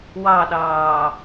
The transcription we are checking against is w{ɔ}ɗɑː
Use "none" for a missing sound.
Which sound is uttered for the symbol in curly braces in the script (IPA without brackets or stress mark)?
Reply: ɑ